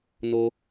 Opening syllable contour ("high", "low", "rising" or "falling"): high